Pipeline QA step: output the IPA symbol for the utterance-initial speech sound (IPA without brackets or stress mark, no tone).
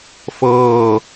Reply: f